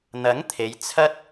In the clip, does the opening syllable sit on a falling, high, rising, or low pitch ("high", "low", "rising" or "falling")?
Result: rising